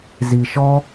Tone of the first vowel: low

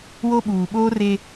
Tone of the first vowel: high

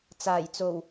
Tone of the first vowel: low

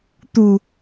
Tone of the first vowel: low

